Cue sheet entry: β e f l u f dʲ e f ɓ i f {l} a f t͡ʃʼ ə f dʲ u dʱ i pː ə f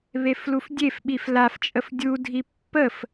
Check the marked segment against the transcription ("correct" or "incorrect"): correct